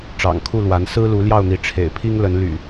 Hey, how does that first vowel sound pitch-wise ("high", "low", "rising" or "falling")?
low